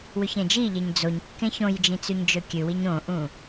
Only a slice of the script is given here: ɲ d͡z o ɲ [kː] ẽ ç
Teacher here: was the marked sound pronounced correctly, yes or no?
yes